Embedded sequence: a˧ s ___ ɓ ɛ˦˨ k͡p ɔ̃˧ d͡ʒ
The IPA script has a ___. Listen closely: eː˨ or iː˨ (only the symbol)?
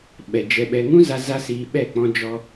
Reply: iː˨